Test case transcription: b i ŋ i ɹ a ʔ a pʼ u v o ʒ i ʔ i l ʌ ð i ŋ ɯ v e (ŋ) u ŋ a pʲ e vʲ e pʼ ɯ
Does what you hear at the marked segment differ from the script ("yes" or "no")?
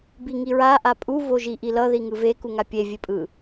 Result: yes